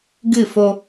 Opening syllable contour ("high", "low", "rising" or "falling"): falling